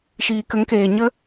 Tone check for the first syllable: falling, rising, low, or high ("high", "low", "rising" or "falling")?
low